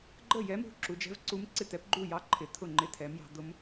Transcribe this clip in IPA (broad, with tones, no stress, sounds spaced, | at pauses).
ɡ͡ǃ ə˥˩ j ɛ˧˥ m ṳ˧˥ ǁ u˩˧ d͡ʒ ɛ̤˧˥ v ǀ u˧˥ m ǀ ɪ˥˩ t̪ ɛ˧˥ p ɡ͡ǃ u˥˩ j ɑ˧˥ ǃʰ ɪ˩˧ t̪ʰ ʊ˥˩ ŋ͡ǃ ɪ˧˥ t̪ʰ ɛ˩˧ m j ɑ̤˩˧ d̪ ʊ˧˥ m